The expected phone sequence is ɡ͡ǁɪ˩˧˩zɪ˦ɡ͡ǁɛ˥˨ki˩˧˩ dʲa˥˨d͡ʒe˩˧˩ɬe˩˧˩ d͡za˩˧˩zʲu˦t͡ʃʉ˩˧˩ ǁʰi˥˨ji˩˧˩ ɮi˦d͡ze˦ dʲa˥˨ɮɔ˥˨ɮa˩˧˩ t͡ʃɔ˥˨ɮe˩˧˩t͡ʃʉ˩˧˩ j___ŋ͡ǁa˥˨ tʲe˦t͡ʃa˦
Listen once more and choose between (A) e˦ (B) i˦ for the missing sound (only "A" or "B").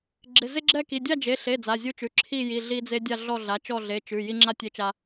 B